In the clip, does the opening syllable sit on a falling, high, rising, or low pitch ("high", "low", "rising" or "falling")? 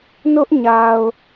high